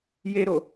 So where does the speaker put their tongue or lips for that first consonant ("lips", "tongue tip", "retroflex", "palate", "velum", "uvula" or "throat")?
palate